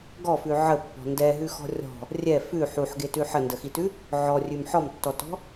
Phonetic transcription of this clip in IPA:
ɡ ɔ f ʉ ʕ ə pː ɔ̤ n d ɛ ɦ ʉ x ɔ̤ rʲ ɔ̤ | rʲ ɛ f ʉ ħ u ħ ɡ e t ʉ ħ ə n d ə x i t ʉ | ʕ ɔ rʲ ʉ m ħ ɔ m tː ɔ t ɔ̤

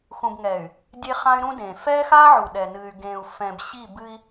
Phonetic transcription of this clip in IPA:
x ũ˨ b ŋ ɛː˨ y̯ | dʲ e˦ χ ã˦ y̯ ɾ ũ˦ d ẽː˨ f ɛ˦ x a˦ ʕ u˨ ɗ ɛ˨ n ɨ˨ y̯ ɡ ẽː˨ u̯ f ɛ̃˨ b ɕ i˦˨ b ɨ˦ i̯

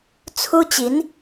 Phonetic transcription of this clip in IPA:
t͡sʰ u˥ t͡ɕ i˧˥ n

